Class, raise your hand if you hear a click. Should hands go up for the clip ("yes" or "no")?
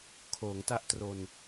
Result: no